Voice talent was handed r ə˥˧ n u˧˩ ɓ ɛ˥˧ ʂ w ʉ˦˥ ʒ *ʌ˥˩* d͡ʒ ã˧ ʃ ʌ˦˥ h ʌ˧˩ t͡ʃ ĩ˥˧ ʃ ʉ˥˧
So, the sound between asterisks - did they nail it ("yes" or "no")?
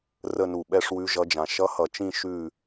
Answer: no